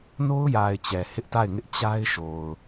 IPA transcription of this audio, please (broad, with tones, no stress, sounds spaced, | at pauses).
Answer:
n o˦ ʊ̯ j a˨ ɪ̯ t͡ɕ ɛ˨ h ɪ˦ ʔ t a˦˨ ɪ̯ ŋ ɪ˦ ʔ t͡ɕ a˦ ɪ̯ ʃ o˨ ʊ̯